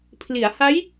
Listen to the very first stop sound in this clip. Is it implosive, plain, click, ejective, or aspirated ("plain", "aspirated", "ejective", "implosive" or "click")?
aspirated